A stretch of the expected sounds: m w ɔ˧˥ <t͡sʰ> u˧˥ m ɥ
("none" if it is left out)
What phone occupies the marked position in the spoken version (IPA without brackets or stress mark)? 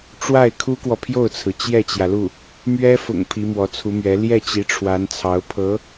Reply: t͡sʰ